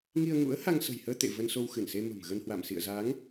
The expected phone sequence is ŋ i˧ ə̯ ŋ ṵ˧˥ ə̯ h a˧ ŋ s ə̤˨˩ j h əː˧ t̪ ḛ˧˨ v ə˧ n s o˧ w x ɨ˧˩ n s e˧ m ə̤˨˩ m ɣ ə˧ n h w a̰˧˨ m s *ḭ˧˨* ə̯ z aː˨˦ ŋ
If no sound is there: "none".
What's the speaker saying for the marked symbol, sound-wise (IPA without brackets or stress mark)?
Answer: ḭ˧˨